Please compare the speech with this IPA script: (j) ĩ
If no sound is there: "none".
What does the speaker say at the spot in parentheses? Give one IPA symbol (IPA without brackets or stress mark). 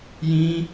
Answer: j